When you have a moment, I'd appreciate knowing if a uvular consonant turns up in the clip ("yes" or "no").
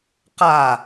yes